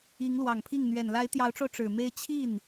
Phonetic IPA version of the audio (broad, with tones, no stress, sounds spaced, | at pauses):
i˧˥ ŋ l w ɑ˨˩ ŋ pʰ i˥˩ ŋ n̪ ɥ ɛ˨˩ n l a˧˥ ɪ̯ t̪ j ɑ˧˥ ʊ̯ ʈ͡ʂ o˧ ʊ̯ ʈ͡ʂ ɻ̩˨˩ m e˥ ɪ̯ t͡ɕʰ i˥˩ n